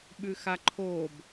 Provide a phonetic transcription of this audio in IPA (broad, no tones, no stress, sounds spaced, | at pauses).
ɓ ʉ x a ǃʰ o b